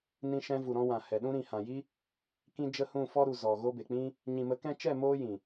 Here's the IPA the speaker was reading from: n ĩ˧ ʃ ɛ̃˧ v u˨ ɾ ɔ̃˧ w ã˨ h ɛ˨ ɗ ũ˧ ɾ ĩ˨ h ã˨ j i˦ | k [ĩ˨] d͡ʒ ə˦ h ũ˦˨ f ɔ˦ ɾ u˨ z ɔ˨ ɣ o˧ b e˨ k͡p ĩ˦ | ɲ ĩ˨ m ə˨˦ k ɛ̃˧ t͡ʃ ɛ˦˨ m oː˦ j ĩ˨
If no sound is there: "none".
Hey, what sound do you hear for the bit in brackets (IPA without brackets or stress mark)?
ĩ˦